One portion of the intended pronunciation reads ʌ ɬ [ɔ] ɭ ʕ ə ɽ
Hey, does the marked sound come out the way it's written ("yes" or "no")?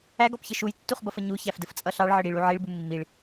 no